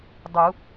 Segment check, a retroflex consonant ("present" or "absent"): absent